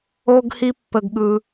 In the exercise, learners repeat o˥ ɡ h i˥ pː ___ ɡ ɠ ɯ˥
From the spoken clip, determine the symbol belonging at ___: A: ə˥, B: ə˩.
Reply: A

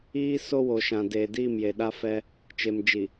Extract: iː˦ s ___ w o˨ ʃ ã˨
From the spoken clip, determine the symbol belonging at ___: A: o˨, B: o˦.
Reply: B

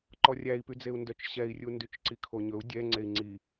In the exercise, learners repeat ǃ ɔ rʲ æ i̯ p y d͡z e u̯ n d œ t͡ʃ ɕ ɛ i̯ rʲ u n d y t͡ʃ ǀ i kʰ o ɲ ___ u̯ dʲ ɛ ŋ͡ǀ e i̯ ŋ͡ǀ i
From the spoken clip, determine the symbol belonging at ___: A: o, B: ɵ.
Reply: B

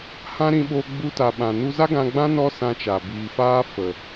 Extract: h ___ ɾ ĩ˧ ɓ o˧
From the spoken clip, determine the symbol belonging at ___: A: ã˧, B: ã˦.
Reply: B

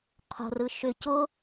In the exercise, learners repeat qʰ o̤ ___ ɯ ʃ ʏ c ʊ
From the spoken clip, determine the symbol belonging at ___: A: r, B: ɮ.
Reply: A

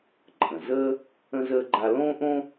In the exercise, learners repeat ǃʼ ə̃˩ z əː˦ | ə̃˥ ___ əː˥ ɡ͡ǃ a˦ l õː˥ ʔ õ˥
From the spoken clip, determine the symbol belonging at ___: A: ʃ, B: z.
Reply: B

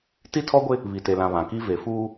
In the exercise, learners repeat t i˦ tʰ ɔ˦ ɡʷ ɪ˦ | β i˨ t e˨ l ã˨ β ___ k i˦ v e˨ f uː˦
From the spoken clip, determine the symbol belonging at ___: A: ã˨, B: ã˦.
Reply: A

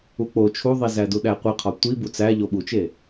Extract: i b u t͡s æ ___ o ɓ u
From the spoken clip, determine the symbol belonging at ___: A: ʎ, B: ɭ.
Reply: A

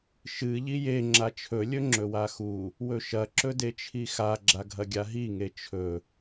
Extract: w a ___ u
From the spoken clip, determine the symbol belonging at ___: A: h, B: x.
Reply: B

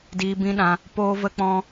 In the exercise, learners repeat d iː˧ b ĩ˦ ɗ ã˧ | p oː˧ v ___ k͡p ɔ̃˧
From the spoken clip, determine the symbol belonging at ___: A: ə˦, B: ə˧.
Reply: B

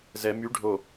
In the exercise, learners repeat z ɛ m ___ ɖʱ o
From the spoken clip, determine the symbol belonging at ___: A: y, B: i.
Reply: A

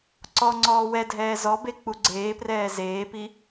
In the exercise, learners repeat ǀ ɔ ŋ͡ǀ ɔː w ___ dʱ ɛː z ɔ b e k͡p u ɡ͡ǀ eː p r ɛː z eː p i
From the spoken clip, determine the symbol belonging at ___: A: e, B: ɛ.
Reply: B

